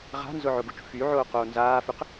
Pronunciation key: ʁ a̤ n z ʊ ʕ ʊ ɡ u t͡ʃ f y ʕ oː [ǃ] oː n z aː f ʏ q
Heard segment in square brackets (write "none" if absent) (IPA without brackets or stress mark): q